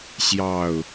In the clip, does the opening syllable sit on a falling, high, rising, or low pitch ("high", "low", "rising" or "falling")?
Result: falling